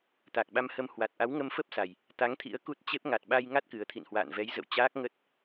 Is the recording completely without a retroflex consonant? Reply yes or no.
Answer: yes